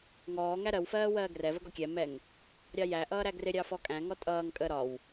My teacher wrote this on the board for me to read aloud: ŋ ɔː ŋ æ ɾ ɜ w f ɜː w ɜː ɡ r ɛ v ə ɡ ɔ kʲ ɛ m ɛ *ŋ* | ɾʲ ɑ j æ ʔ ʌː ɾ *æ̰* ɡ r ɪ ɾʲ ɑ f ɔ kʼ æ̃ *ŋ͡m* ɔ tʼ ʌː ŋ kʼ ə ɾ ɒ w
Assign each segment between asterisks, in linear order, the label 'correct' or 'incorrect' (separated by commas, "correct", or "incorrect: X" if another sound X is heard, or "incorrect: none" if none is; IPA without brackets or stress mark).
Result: correct, incorrect: æ, incorrect: ŋ